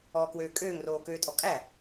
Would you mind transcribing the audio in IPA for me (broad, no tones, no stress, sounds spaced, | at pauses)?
ɔː k w øː kʼ øː ŋ r oː k øː tʼ ɔ kʼ æ